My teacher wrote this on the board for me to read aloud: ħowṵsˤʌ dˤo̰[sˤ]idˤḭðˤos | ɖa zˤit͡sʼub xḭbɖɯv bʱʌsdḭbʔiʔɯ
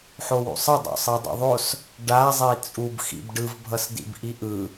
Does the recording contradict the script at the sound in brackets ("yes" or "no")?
no